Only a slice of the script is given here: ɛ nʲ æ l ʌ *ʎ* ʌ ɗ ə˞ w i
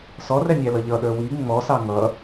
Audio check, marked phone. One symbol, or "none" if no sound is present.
ʎ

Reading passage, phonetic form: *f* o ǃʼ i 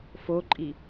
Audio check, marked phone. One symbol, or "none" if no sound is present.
f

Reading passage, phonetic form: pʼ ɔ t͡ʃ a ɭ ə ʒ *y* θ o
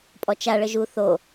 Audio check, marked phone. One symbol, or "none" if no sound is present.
u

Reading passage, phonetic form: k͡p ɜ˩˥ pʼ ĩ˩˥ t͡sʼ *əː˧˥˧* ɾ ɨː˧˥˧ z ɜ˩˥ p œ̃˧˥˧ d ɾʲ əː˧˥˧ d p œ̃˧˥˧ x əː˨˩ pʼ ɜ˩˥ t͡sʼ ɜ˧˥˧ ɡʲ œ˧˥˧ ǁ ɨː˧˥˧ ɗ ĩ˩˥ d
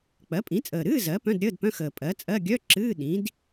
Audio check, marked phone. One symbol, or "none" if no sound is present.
əː˨˩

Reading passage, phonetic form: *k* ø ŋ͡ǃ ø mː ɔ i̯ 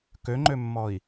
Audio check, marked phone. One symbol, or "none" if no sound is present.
k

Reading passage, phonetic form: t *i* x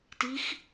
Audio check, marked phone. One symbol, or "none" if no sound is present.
i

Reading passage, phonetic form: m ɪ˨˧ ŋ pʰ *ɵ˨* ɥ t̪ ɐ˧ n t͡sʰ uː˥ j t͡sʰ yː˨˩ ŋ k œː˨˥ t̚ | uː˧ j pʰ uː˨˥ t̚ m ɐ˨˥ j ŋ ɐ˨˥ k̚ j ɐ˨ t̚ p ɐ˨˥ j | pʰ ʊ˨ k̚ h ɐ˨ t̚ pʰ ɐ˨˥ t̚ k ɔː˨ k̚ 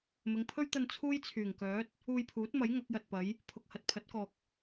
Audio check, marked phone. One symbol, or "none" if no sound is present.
ɵ˥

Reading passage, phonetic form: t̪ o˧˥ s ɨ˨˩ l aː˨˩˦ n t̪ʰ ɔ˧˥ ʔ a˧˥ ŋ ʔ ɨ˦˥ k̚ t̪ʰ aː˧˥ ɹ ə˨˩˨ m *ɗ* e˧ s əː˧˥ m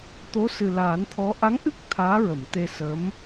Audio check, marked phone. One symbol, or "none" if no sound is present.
t̪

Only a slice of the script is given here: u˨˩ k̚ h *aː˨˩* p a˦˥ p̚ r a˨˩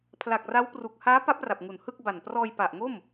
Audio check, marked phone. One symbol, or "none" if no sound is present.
aː˦˥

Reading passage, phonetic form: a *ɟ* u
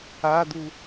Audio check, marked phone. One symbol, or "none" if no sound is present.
d̪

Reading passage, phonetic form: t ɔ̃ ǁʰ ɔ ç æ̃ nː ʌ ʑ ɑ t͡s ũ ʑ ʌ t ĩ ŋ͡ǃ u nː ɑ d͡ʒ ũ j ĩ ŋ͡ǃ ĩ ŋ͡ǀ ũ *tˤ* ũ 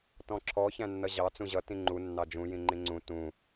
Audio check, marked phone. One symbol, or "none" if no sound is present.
t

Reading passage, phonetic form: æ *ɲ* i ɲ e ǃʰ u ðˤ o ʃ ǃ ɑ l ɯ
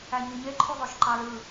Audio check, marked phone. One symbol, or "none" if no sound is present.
ɲ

